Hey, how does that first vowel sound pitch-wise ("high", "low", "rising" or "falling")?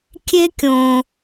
high